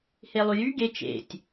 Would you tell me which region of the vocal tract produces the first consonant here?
throat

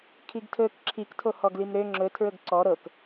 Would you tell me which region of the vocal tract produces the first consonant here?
velum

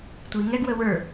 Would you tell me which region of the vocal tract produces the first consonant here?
tongue tip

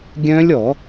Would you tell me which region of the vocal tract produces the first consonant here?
velum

